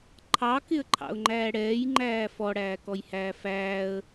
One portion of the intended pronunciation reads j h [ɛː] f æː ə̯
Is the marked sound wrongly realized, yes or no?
yes